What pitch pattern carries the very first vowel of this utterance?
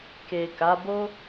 low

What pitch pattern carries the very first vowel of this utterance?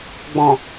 low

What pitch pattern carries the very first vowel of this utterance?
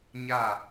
falling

